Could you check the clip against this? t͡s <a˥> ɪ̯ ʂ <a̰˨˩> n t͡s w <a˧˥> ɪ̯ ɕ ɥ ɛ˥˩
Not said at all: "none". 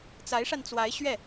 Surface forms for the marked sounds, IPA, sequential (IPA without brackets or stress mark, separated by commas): a˧˥, a˧, a˧˥